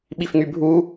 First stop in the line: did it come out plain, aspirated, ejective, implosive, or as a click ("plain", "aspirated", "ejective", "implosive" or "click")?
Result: implosive